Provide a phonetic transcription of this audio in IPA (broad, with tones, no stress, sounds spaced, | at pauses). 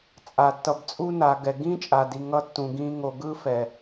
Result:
t͡sʼ a˨ tː ʌ˨ b t͡sʼ u˧ n a˨ ɡ ɛ˨ ɡ ĩ˦ t͡ʃʼ a˨ d i˨ ŋ ʌ˦˨ tː ũ˨ ɡ ĩ˧ ŋ o˨ ɡ ɯ˧ f ɛ˨